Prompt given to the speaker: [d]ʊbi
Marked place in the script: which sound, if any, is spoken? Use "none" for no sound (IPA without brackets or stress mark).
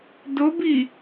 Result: d